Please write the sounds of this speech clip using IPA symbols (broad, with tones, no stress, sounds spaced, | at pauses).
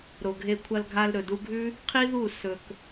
ɾ o˨ ɡʱ e˧ kʷʰ ɐ˧ l ɡʱ a˧ l ɾ ɵ˨ d u˧ ɡʱ ʉ˦ | qʰ i˦ ð u˦˨ s ɵ˨ k